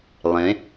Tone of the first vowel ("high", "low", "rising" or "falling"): rising